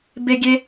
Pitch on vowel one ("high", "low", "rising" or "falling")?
high